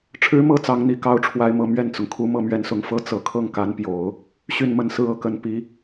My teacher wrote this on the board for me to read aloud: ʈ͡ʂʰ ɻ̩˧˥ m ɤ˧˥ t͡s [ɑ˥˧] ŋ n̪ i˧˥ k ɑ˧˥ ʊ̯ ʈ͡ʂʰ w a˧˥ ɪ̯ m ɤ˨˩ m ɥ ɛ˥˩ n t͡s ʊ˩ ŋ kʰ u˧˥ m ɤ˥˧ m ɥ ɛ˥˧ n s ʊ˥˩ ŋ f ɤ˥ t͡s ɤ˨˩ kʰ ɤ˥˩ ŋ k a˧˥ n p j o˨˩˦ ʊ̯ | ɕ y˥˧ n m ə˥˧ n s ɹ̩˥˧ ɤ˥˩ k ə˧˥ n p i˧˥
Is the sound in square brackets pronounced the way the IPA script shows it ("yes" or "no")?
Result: no